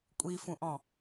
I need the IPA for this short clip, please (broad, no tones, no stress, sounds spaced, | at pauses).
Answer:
kʷʼ i f ũ ʔ ɔ̃